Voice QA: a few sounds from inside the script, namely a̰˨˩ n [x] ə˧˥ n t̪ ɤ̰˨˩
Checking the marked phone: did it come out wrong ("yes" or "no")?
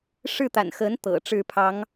no